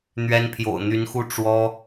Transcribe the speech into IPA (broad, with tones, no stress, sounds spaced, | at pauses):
n̪ ɥ ɛ˥ n pʰ j o̰˨˩ ʊ̯ n̪ y˧˥ n x u˥ ʈ͡ʂ w ɔ˥